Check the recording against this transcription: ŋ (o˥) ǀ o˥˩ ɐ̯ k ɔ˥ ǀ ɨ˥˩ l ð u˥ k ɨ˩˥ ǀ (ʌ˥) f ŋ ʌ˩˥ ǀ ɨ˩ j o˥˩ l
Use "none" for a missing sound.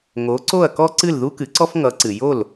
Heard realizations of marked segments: o˩˥, ɔ˥

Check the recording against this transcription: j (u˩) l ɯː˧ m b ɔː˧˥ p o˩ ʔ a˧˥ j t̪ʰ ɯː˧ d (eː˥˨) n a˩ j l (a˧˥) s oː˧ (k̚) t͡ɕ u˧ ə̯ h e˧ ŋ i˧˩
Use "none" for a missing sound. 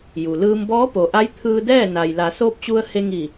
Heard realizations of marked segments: u˩, ɛː˥˨, a˩˧, p̚

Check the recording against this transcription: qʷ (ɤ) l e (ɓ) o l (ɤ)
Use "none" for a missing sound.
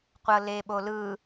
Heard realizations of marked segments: ɤ, ɓ, ɯ

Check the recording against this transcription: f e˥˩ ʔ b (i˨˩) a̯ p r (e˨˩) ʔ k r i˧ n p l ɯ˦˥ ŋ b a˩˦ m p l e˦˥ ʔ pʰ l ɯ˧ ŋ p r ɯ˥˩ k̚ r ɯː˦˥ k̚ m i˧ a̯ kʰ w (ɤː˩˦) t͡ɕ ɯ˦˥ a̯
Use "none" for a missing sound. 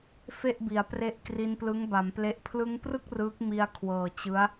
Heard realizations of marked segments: i˩˦, e˦˥, ɤː˨˩

